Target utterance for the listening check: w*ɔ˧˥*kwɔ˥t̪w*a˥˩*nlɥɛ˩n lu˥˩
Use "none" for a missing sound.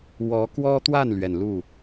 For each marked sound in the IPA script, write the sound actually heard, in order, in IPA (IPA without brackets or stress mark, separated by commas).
ɔ˧˥, a˥˩